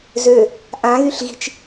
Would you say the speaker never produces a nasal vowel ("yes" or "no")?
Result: no